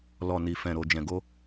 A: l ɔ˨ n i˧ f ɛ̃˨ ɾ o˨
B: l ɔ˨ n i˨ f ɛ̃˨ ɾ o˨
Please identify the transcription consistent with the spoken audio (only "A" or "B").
B